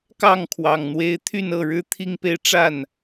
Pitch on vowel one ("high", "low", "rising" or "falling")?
falling